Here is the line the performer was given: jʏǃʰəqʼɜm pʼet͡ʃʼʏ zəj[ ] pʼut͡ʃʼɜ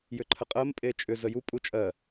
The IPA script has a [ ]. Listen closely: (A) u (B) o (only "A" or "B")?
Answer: A